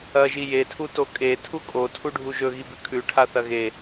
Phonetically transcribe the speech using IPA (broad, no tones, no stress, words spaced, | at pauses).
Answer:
ɐʒi jetʰuto kʼe tʰukʼo tʰuɖʱuʒɵ ɣibʉkʰʉʈʰa θɐɣe